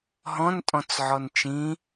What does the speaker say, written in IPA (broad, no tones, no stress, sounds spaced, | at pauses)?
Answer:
ɦ ɔ̃ n tʼ ɔ̃ t͡s ʕ ɔ n t͡ʃ ĩ